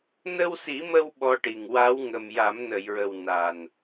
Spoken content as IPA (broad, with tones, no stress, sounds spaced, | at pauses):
n ə˧ w s i˨˩˦ m ə˧ w ɓ ɔ˧ ʈ i˨˩ ŋ w a˧˥ w ŋ ə˨˩ m j a˨˩˦ m n ə˨˩˨ j ɹ ə˨˩ w n a˨˩ n